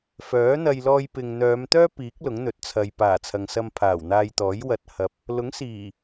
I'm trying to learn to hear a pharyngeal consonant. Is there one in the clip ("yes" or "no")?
no